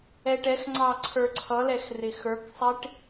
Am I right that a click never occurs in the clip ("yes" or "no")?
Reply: no